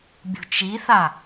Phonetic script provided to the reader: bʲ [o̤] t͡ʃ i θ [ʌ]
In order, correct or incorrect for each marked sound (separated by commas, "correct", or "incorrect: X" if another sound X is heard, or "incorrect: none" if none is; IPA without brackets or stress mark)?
correct, incorrect: a